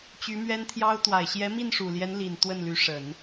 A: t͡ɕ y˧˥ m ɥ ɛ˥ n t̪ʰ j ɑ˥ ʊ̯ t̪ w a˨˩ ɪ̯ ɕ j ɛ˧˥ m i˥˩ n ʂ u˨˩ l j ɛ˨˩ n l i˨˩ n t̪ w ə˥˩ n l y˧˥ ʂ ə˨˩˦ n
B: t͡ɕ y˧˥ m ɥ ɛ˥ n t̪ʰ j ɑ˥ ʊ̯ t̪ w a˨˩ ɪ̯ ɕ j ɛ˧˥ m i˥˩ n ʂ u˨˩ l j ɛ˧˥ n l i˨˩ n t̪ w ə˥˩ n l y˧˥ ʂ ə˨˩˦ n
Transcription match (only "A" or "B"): B